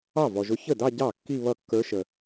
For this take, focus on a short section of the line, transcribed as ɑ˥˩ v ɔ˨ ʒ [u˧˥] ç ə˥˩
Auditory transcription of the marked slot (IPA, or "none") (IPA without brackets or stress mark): ʊ˧˥